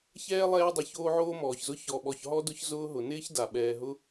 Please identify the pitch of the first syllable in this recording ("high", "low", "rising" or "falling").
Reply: high